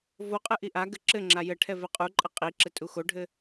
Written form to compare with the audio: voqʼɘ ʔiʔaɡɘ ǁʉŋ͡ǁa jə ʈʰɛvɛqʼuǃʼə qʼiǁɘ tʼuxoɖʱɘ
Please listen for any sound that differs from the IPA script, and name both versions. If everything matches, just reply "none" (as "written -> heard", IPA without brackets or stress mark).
ʉ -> ɘ